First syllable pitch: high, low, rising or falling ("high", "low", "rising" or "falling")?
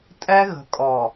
high